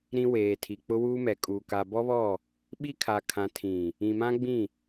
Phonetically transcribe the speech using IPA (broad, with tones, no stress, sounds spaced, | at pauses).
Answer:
ɾ ĩ˦ w eː˨ tʰ i˨ k͡p ʊ˦ w uː˦ m ɛ˨ kʼ uː˨ k a˨ b ɔ˦ β ɔ˦˨ | ɓ i˦ kʰ a˨ kʰ ã˨ tʰ ĩ˨ | ĩ˨ m ã˦ ɡ͡b ĩ˦˨